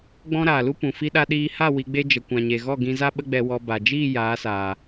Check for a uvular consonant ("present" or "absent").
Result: absent